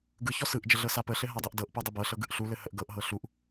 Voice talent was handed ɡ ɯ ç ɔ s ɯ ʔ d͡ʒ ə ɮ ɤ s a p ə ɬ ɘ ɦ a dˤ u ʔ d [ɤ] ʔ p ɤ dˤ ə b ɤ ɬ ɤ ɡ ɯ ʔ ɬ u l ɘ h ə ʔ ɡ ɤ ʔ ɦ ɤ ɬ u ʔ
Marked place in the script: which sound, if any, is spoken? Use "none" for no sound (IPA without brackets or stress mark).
ɤ